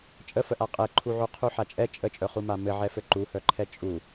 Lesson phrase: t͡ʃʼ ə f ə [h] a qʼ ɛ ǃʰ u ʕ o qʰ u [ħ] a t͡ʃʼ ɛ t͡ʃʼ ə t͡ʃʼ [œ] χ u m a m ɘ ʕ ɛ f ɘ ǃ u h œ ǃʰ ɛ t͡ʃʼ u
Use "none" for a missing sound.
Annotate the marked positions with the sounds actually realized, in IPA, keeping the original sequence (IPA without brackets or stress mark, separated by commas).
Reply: ʔ, ħ, œ